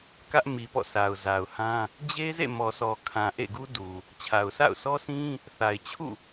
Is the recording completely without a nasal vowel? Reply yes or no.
no